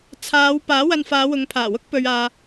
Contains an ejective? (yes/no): no